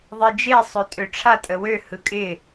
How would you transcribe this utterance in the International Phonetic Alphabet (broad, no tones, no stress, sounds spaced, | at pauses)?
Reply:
ðˤ e d͡ʒ e sˤ ø tʼ ø ʈ͡ʂʰ a tʼ ə w ø h ɯ kʼ ɪ